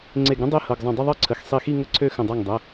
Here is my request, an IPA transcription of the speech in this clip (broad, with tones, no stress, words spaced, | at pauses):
ŋ͡ǀe˧˩ɡ ɾə̃˥ dˤe˥ hɤ˩˧˩ɡzˤə̃˧˩ dˤə˥˧ðˤɤ˥˧ǀʰə˩˧˩x sˤi˧˩xi˥˧ ŋə˥˧ǀʰø˥˧xə̃˧˩ dˤɤ˧˩ŋdˤə˩˧˩